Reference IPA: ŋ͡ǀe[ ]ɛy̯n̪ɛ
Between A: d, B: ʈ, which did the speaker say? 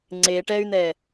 B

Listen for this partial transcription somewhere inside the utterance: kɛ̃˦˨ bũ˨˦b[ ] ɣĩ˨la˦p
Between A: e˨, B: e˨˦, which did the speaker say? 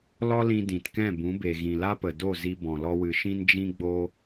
A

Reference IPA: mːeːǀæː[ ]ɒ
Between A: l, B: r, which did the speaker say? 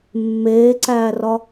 B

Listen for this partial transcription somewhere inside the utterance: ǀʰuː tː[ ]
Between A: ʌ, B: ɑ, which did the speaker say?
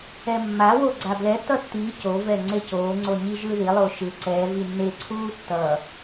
A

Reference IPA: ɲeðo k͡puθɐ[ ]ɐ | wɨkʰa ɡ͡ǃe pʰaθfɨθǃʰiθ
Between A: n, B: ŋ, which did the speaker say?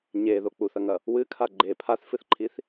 B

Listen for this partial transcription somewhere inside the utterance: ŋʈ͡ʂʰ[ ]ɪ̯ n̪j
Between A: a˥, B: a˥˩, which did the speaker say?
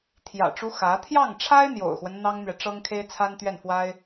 A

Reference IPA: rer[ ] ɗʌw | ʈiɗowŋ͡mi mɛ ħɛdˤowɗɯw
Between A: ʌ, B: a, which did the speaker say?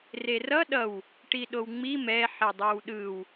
A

